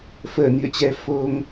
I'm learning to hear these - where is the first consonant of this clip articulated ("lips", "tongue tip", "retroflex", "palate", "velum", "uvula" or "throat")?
lips